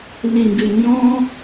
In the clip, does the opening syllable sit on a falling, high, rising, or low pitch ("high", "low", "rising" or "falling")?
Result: low